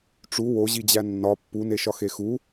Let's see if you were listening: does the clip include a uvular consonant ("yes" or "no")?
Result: no